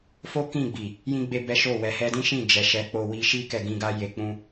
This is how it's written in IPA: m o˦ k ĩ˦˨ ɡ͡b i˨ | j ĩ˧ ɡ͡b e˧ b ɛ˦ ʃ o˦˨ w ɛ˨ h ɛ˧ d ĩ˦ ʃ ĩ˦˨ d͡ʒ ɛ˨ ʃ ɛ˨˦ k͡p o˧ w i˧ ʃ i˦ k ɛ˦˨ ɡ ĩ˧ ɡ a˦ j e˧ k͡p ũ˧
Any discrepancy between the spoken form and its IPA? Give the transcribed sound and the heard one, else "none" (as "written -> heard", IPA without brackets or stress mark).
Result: m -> f